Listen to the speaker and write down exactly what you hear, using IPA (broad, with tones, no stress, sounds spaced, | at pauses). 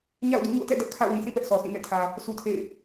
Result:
ɲ a̰˦˨ ʊ̯ d ṵ˦˨ ɲ o̰˦˨ t ɛ̰˦˨ d ɛ˦ ʔ kʰ a̰˦˨ ʊ̯ w ĩ˨ sʰ ĩ˦˨ p ɛ˦ ʔ s ɔ˨ sʰ ĩ˦˨ n ɛ̰˦˨ tʰ ä˨ | sʰ u˦ tʰ ḛ˦˨ ɪ̯